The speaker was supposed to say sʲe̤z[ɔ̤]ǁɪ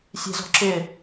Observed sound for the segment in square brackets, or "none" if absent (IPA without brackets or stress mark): ɔ̤